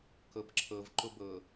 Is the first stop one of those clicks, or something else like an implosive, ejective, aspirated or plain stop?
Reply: plain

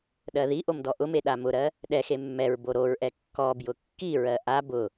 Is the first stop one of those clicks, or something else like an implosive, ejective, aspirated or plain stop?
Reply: implosive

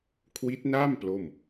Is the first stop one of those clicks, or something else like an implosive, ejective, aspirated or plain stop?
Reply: aspirated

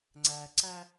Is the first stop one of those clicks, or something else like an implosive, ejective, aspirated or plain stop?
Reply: click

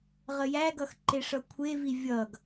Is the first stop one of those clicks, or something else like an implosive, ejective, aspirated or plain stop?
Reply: plain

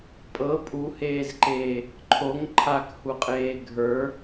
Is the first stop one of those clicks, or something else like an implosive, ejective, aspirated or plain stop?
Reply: ejective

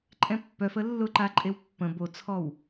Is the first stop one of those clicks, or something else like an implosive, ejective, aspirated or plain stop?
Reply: click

